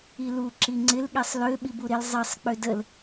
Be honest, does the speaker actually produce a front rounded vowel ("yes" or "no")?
yes